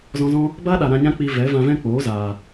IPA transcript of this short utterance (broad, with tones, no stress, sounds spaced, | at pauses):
z ɔ̃˧ z ɔ̃˦ | b a˦ ɗ a˨ ɾ ã˧ ɲ ã˦ k͡p i˧ v ɛ˨˦ v ã˧ v ɛ̃˦ k͡p oː˨˦ z aː˨